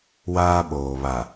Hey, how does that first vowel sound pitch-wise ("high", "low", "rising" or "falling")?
high